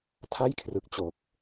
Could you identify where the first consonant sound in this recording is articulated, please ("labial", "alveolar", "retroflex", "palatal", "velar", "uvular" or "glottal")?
alveolar